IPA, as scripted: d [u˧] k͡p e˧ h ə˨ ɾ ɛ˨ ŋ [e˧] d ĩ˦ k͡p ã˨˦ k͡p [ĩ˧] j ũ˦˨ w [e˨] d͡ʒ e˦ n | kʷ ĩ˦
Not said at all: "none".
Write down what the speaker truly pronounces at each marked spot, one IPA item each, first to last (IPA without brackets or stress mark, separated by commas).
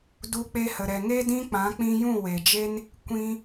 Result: u˧, e˦, ĩ˧, e˨